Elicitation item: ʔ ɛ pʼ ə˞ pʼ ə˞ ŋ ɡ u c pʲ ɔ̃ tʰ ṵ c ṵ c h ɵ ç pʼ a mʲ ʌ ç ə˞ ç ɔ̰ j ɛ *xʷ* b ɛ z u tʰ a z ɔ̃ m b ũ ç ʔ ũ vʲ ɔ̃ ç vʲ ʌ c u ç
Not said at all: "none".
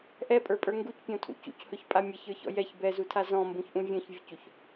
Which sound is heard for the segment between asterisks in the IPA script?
ç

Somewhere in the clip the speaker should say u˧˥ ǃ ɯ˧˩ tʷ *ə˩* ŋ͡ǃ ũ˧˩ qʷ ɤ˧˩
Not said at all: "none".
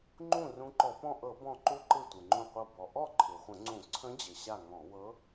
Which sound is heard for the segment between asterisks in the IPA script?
ɯ˩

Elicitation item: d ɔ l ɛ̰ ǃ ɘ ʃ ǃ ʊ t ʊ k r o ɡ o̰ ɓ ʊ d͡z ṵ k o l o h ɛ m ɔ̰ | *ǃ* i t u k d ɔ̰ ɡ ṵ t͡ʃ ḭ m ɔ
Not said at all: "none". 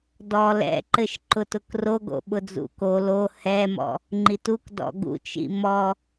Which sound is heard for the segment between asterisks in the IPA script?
ŋ͡ǃ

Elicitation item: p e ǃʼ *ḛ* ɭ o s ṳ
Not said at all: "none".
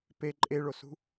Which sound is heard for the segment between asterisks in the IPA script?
e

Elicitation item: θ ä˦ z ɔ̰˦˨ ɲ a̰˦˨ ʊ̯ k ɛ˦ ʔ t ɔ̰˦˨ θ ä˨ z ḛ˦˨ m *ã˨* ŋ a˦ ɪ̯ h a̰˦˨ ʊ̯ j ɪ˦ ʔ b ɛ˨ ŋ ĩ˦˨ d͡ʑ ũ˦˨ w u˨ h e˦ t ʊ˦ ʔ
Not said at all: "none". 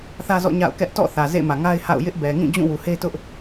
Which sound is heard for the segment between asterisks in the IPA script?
ä˨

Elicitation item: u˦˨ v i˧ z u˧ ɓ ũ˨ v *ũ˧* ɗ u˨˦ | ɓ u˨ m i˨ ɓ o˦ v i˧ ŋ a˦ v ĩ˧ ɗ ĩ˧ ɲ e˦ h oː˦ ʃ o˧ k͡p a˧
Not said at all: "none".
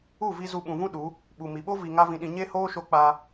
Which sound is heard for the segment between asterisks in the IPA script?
ũ˦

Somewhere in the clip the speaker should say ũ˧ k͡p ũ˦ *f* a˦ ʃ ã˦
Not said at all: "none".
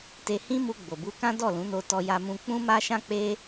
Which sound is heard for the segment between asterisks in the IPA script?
m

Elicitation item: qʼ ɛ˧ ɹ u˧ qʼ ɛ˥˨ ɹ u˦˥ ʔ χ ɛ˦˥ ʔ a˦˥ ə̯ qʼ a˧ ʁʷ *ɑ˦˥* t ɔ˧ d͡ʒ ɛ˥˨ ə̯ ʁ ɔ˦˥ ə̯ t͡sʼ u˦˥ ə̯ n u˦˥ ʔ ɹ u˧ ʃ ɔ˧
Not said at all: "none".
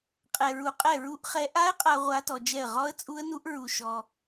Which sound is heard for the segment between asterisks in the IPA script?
a˦˥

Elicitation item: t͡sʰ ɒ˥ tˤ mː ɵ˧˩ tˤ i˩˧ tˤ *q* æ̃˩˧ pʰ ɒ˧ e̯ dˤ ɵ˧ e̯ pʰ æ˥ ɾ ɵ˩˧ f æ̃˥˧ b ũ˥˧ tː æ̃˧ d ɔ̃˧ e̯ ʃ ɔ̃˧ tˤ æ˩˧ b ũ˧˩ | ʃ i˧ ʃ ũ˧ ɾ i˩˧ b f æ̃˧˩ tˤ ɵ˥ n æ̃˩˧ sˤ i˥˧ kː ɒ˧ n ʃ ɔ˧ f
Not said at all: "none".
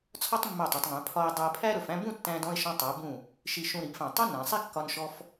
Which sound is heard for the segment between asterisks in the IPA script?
ŋ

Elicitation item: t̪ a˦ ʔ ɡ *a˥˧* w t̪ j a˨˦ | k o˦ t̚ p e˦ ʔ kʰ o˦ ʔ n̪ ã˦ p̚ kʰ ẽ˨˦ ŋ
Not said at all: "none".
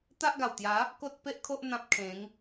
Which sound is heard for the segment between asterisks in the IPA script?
a˨˩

